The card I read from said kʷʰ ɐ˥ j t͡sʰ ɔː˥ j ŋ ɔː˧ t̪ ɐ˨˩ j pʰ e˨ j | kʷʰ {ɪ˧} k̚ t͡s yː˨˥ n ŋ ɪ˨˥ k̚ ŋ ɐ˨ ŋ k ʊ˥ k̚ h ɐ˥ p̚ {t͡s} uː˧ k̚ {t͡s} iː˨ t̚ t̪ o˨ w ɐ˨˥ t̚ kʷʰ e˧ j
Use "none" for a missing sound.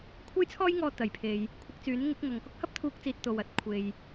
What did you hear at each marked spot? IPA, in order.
ɪ˧, t̪ʰ, t͡s

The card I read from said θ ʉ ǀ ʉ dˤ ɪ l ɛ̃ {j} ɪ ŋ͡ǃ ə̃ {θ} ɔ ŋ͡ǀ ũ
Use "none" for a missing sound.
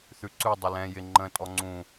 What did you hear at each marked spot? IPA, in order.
j, tʼ

